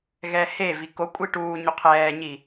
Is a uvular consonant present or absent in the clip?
present